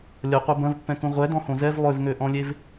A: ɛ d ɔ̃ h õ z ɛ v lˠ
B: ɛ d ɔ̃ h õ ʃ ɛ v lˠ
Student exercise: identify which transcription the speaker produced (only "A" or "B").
A